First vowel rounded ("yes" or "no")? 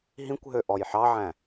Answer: no